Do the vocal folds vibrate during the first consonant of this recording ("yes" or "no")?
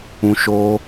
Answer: no